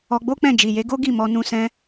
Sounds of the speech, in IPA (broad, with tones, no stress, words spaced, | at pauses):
ɔ˧ɡ͡bo˦k͡pɛ̃˦˨ d͡ʒi˨je˨˦ɡo˦ ɡi˦˨mɔ˧ nũ˧sɛ̃˧